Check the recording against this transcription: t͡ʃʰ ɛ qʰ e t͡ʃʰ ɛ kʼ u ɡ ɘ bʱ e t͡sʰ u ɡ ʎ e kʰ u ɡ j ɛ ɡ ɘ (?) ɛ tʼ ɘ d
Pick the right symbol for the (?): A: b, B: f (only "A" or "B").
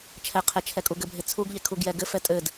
B